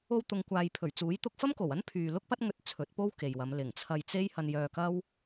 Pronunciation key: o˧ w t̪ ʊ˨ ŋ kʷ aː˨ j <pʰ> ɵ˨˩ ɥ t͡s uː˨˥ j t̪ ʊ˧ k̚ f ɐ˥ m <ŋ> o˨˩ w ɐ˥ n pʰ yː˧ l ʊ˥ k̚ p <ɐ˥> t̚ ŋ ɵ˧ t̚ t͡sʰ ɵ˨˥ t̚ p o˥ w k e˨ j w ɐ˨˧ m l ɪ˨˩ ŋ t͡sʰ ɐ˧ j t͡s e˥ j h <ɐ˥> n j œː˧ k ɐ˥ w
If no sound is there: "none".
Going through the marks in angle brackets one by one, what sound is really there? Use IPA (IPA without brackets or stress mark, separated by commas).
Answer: pʰ, k, ɐ˥, ɐ˧